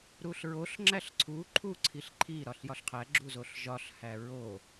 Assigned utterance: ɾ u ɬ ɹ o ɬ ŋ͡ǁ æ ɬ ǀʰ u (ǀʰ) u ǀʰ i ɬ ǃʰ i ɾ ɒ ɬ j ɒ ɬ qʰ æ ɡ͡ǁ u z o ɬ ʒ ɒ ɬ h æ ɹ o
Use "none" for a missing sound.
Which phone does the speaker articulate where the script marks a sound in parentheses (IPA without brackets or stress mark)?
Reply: ǃʰ